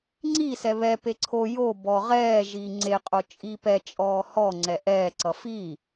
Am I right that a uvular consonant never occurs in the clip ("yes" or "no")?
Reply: no